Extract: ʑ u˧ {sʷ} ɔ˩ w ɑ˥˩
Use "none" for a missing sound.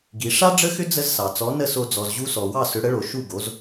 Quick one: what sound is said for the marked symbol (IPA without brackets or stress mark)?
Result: s